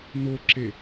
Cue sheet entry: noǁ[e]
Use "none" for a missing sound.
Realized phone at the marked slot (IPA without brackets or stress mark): e